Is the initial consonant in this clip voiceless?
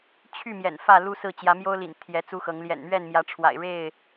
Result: yes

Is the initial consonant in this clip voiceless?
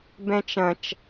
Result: no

